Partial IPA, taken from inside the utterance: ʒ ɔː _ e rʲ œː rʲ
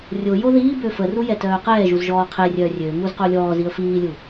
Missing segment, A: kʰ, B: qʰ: B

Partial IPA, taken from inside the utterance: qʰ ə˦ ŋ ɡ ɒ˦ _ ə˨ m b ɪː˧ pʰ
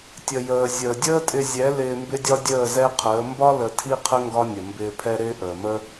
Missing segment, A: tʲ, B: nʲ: B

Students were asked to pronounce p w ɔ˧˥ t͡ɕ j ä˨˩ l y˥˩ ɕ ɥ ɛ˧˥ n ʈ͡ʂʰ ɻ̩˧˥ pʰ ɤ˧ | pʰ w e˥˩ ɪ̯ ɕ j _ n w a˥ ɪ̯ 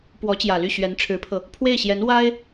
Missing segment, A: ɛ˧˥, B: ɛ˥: A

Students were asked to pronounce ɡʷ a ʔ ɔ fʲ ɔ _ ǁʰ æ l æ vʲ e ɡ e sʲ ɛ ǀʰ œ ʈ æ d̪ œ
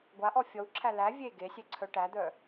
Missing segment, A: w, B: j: A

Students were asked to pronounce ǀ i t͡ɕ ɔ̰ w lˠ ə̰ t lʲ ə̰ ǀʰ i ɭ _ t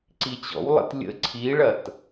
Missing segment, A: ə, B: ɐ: B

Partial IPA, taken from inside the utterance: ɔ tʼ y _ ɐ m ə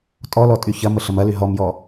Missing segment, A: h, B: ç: B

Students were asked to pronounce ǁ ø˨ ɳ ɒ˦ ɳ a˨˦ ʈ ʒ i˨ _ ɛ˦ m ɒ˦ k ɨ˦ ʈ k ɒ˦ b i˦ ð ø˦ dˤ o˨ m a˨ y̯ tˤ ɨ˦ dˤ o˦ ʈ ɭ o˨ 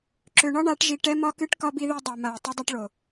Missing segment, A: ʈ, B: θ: A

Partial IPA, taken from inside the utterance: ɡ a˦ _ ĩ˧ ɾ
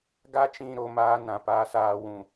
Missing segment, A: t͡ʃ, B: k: A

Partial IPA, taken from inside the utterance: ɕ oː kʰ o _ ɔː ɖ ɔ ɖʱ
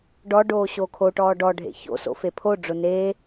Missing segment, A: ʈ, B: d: A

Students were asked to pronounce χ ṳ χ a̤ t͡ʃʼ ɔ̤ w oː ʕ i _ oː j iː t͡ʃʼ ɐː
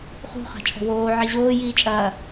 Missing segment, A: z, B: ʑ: B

